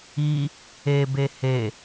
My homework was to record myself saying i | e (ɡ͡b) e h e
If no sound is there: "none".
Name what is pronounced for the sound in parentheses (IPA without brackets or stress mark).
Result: b